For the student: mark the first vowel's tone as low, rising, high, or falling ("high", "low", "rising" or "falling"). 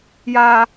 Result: high